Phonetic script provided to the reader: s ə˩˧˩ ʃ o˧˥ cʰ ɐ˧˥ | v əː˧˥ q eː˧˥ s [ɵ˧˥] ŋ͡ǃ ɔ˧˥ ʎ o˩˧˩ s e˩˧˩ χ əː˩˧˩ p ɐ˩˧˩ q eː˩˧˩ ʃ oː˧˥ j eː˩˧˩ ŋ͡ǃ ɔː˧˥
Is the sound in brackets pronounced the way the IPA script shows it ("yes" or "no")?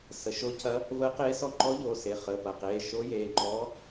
no